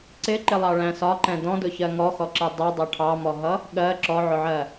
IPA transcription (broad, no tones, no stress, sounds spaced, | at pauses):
ǀ ɪ ǃ ɪ lˠ ɑ ɭ æ̃ s ɒ ǃ ɛ̃ d ɔ̃ d ʊ ç ɜ ŋ ɔ x ɔ ǁ ɛ dˤ ɛ dˤ ʌ ʈʰ ɑ m ɔ ɦ ʌ | ɠ ɜ ǁ ɔ ʕ ʊ ʕ ɜ